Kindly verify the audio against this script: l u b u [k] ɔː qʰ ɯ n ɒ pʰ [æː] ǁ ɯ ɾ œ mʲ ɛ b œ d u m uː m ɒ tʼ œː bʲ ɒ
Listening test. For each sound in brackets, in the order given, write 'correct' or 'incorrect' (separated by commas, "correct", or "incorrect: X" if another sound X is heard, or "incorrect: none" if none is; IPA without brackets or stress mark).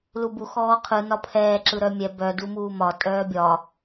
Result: incorrect: x, incorrect: ɛː